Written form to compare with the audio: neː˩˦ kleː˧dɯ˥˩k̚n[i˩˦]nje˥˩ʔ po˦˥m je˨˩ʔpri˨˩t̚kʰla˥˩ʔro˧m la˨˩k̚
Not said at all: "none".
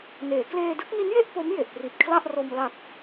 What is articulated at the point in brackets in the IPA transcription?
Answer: i˦˥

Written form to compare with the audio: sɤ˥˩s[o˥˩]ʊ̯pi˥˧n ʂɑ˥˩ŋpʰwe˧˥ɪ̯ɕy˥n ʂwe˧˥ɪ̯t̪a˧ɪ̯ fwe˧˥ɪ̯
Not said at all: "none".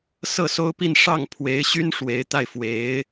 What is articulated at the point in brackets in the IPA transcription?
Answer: o˥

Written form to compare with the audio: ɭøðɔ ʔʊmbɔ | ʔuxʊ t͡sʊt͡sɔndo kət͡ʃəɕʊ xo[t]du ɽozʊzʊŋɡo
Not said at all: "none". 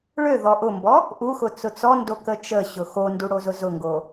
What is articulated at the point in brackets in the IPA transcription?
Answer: n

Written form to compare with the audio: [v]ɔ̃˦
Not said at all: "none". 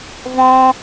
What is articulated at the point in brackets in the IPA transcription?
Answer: v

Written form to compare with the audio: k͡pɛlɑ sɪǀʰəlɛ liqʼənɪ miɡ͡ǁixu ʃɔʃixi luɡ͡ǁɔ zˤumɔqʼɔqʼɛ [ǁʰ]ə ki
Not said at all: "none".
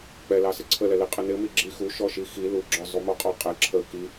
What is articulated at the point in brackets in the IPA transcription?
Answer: ǁʰ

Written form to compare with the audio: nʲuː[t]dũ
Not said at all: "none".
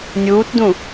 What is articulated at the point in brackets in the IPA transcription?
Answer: t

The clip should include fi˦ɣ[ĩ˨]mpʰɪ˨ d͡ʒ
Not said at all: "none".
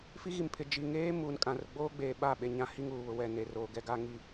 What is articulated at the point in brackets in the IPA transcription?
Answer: i˨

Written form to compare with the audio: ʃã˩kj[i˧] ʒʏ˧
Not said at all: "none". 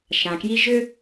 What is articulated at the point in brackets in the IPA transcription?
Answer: i˧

